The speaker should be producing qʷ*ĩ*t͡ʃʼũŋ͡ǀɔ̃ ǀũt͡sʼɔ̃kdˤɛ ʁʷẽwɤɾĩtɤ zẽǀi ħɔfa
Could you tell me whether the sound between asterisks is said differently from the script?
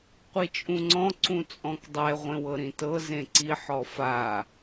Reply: yes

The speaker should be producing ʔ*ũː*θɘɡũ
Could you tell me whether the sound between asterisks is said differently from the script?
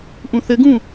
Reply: yes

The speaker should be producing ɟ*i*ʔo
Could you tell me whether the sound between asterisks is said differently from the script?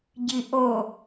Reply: no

